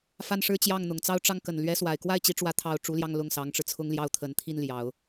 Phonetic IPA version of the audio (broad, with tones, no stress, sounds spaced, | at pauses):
f a˥˩ n ʂ ɻ̩˥ t͡ɕ j ɑ˥˩ ŋ n̪ ʊ˨˩ ŋ t͡s ɑ˥˧ ʊ̯ ʈ͡ʂ ɑ˥˩ ŋ k ə˨˩ n l ɥ ɛ˧˥ s w a˨˩ ɪ̯ k w a˥˩ ɪ̯ t͡ɕ i˧˥ ʈ͡ʂ w ä˧˥ t̪ʰ ɑ˨˩ ʊ̯ ʈ͡ʂ u˧˥ l j ɑ˥˧ ŋ l ʊ˥˩ ŋ s ɑ˧˥ ŋ ʈ͡ʂ ɻ̩˧ t͡sʰ ʊ˥ ŋ l j ɑ˥˩ ʊ̯ t̪ʰ ə˨˩ n t̪ʰ i˥˩ n l j ɑ˨˩˦ ʊ̯